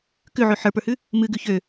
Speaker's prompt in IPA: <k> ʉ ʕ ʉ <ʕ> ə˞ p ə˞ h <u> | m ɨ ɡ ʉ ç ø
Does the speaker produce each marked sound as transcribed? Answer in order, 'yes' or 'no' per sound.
yes, no, no

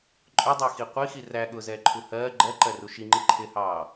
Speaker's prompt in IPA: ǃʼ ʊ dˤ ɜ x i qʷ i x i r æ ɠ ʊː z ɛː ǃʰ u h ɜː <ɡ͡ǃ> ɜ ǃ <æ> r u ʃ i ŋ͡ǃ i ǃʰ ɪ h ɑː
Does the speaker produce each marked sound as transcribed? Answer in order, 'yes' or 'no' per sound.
yes, no

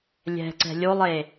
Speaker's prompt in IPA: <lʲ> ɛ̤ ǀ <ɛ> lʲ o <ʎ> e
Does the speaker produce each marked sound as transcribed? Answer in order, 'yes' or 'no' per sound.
yes, no, no

